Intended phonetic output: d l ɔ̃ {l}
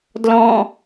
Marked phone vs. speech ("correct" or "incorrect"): incorrect